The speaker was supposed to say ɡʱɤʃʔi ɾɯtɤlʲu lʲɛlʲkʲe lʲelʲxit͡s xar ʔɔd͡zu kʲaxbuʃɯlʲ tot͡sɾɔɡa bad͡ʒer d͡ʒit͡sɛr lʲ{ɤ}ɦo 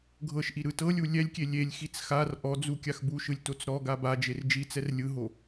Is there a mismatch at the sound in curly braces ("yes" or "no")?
yes